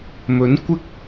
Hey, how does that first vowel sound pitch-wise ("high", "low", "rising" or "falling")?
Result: rising